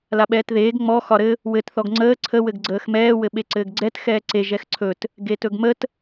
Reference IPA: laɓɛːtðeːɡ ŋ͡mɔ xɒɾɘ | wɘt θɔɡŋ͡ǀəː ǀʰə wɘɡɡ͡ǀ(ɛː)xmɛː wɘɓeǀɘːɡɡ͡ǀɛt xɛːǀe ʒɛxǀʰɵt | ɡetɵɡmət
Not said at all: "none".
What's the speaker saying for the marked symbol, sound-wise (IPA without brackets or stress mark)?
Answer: əː